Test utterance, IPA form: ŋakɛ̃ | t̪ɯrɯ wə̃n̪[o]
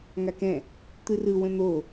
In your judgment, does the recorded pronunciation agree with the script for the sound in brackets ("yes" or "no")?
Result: yes